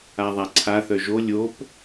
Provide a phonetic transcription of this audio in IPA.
aðˤaǀʰa θœʒo lʲop

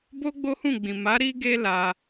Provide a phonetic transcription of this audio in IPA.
bo˦ɡ͡bo˦hũ˦˨ɡ͡bĩ˨ ma˨˦ ɾi˦ɡe˦ la˧

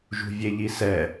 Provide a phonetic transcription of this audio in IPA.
ʒṳvʲeʎisɛ

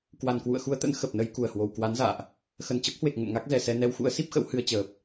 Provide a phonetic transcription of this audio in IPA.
kwa˨˩nkwṵ˧˨ə̯xu˧ə̯t̪ə̰˧˥n xə˨˩p̚nə˧j ku˧˩ə̯hwo˨˩w kwa˨˦nza̰ː˧˨ʔ | xə˧˩nt͡ɕə˦˥p̚hwe˨˩k̚ ŋə̰˧˨nŋa˦˥k̚zɛ˧˩sɛ˧ nɛ˧wxṵ˧˥ə̯si˦˥p̚xə̰˧˥w hɨ˧ə̯t͡ɕəː˨˩p̚

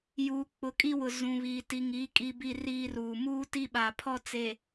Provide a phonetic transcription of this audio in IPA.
juː˨k͡pʊ˨kʼi˦wʊ˨ zũ˨βiː˨ ti˨ŋi˨˦ kʼi˦bi˦riː˦ruː˨ muː˦ti˦ɓa˨ pʰɔ˦t͡se˨

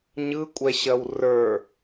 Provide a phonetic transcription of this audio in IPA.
ɲɯkʷʼɛɕɐw rə˞

